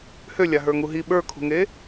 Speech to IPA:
h ø lʲ a ɦ ə˞ ŋ u ɦ i ɓ ə˞ kʰ ṳ ŋ e

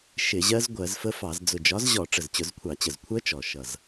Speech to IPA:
ʃ ɪ˧˩˧ ʑ ɜ˦˥ z ɡʷ ɜ˧˩˧ z f ə˦˥ f ɑ˧˩˧ z d͡z ʊ˨˩ d͡ʒ ɒ˨˥ z ʑ ɔ˧˩˧ ʈ͡ʂ ə˨˩ z t͡ɕ ʊ˧˩˧ z kʷʰ ɑ˧˩˧ t͡ɕ ə˨˩ z kʷʰ ɜ˦˥ t͡ʃ ɔ˨˩ ʃ ʌ˨˩ z

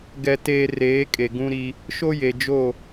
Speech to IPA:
ɡ ɛ˨ t eː˨ r eː˨˦ kʼ e˨ ɡ ũ˦ ɾ i˦ | ʃ o˦ j e˨ d͡ʒ o˦˨

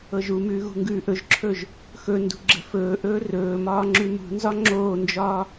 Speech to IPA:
ɤ ʒ u m ʉː ɣ ṳ ŋ ɡ ʉː ʔ ɵ ʒ ǁʰ ɵː ʒ | x ɵ n d ṳ ɡ͡ǁ ə̤ f ɵː ʔ ɵː r ɵː m ɒː ŋ͡ǁ ʉ m ṳ n z ɒ ŋ͡ǁ oː n d͡ʒ ɒː

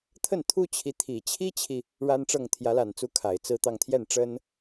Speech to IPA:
t̪ʰ ə˥˩ n t̪ʰ u˥ t͡ɕʰ i˧˥ t̪ʰ i˨˩ t͡ɕʰ i˥ t͡ɕʰ i˨ | ɻ a˥ n ʈ͡ʂ ɤ˥˩ ŋ t̪ʰ j ä˧˥ l a˨˩ n t͡s u˧˥ kʰ a˨˩ ɪ̯ t͡s ɹ̩˥˧ t̪ ɑ˥˧ ŋ t̪ʰ j ɛ˥˩ n ʈ͡ʂ ə˥ n

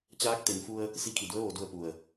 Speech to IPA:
t͡ɕ aː˧˥ k̚ t̪ e˩˧ n f u˧ ə̯ | s i˧˥ kʰ i˧˩ d u˧˥ ə̯ ʋ o˧ d u˥˨ ə̯ p u˧˩ ə̯

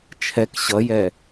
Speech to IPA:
t͡ʃʰ ɛ k ɕ ʌ j ɛ

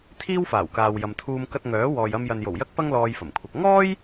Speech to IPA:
t̪ʰ iː˥ w f aː˨˩ w k aː˨ w j ɐ˨ m t̪ʰ uː˧ m k ɐ˧ t̚ ŋ œː˨˥ w ɔː˨ j ɐ˧ m j ɐ˨ n j o˨˩ w j ɐ˥ k̚ p ɐ˥ ŋ l ɔː˧ j f ɐ˨˩ m kʷʰ ɐ˧ k̚ ŋ ɔː˥ j

